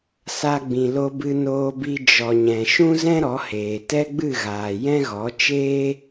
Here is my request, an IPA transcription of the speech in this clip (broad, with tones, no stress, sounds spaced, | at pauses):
s a˦ ɡ͡b ĩ˧ l o˧ b ɨ˧ n oː˧ b i˧ d͡ʒ ɔ˨ ɲ ɛ̃˨ ʃ ũ˦ z ɛ̃˦ ɾ ɔ˨˦ h eː˨ t ɛ˦ ɡ͡b ɨ˦˨ ɣ aː˨ j ɛ̃˦ ɣ ɔ˨˦ t͡ʃ eː˦